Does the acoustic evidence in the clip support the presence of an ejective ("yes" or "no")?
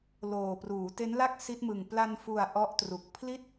no